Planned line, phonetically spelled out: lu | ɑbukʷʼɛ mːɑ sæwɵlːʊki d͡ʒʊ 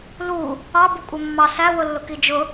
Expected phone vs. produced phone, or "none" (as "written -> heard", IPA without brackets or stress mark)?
ɵ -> ʊ